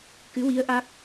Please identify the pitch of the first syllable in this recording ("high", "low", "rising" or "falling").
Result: rising